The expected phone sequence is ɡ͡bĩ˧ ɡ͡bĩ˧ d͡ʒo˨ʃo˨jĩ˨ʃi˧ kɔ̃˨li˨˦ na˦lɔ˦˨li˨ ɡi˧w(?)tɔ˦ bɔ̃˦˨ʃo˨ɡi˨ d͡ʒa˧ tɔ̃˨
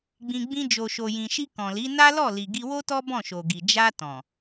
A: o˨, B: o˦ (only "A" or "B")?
B